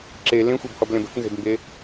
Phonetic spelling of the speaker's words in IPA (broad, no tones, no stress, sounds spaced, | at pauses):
ǁ e l ẽ xʷ e b h ɔ b l ẽ b ə̤ k n z e̤ b m b e